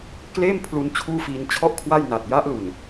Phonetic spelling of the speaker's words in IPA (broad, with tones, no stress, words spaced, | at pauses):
kleː˥˩m pʰlu˦˥nt͡ɕʰuː˥˩fiː˧n t͡ɕʰɔ˥˩ʔkʰwa˥˩jna˨˩t̚ ja˦˥ʔlu˨˩n